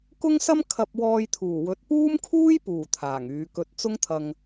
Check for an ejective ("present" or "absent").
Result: absent